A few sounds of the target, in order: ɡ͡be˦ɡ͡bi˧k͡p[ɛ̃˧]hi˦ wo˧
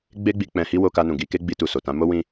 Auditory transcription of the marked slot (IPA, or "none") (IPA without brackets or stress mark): ɛ̃˧